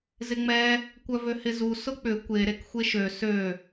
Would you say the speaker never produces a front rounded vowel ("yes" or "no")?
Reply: no